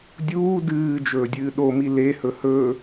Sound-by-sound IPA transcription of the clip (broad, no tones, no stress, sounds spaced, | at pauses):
dʲ uː d ɨː d͡ʒ ɵː dʲ ɨː ɗ o m i l e h ɵ h ɵ